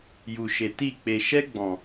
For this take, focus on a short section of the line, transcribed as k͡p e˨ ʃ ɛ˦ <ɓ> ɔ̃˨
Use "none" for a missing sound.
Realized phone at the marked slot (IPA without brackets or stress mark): ɡ͡b